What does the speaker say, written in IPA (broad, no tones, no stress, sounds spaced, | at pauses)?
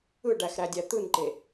ɯ ɖ æ x ɾ æ dʲ æ t̪ ɯ n ǃ e